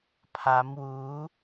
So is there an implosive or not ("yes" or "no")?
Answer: no